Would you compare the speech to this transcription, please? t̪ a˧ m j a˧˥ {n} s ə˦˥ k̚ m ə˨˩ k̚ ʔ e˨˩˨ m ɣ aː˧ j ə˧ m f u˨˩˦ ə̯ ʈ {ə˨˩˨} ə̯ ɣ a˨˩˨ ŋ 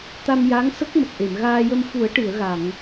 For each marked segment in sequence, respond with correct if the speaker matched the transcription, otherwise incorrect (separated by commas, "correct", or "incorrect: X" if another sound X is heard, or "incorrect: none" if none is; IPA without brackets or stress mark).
incorrect: ŋ, incorrect: ɨ˨˩˨